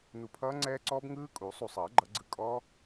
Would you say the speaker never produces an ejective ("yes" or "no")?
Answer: no